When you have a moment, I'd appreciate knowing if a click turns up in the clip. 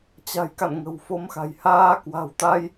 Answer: no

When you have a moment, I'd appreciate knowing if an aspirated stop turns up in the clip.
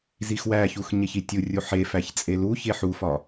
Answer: no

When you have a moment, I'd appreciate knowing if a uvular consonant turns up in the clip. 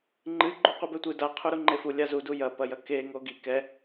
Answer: yes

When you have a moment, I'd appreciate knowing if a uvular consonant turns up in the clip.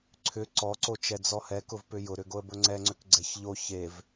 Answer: no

